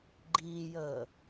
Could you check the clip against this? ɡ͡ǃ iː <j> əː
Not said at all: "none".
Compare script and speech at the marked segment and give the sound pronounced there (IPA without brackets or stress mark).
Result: j